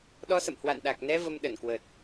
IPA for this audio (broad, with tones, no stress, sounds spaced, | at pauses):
ɗ ɔ˧ s ə̰˧˨ m h w a̰˧˨ n ɗ a˨˩ k̚ n ɛ˧ v ə˧ m ɗ ə˧˩ n k w ə˨˩ t̚